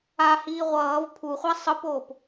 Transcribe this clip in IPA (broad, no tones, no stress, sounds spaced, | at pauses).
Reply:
a h iː ʁʷ ʌː v pʰ u χʷ a sˤ ɯ p oː p